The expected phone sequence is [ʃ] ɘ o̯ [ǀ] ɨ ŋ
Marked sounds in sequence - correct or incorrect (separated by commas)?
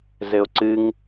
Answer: incorrect, correct